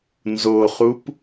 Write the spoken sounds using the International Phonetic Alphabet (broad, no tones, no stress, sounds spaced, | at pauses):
n z o χ u p